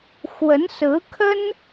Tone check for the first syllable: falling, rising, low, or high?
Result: rising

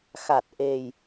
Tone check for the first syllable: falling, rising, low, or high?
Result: low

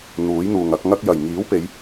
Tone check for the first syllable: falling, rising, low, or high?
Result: rising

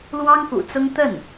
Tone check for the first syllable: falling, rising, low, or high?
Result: high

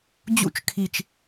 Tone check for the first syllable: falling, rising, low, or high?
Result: high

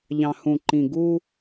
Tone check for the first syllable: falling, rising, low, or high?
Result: low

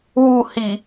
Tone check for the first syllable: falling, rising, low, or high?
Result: falling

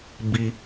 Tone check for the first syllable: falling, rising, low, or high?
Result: high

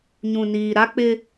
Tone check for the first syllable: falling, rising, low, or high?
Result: low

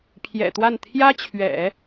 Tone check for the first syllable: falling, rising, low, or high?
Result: low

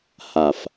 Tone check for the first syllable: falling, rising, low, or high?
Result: low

